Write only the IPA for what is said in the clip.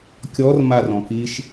kʲ ɔ r m a r ɔ̃ k i ʃ

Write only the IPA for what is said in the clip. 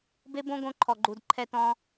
b e˦ b õ˦ ɡ õ˧ ǃʰ ɔ˨ ɡ͡ǃ u˨ d ǃʰ ɛ˧ t ɔ̃˧

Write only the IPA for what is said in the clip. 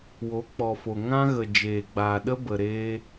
w o˨˦ k͡p ɔ˨ f o˨ ŋ ã˦ ɣ ə˨ d͡ʒ eː˨ ɡ͡b aː˨ ɗ ə˧ b ə˨ ɾ eː˧

